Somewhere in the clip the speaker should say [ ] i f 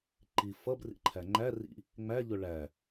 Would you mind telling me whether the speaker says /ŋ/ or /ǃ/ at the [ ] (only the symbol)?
ǃ